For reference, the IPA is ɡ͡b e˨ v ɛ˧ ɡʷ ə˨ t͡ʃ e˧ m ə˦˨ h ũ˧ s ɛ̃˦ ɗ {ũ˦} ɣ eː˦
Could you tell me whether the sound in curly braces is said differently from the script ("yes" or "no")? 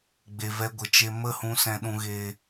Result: no